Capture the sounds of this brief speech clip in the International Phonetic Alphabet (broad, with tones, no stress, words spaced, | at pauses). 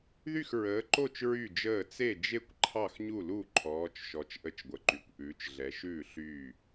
ðy˥˨xɹəː˨˦ǃo˥˨t͡ʃ ɹy˥˨d͡ʒəː˥˨ t͡se˥˨d͡ʒe˥˨kʷ ǃʰɑ˥˨xɲu˥˨lu˥˨ ǃʰɔː˨˦t͡ʃʃɔ˨˦t͡ʃ ʔə˥˨t͡ʃɡʷə˨˦ǃy˨˦kʷ ʔʉː˨˦t͡ʃɮɛ˨˦ʃʉː˥˨ ɬyː˥˨